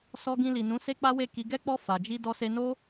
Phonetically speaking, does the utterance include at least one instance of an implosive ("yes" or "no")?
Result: no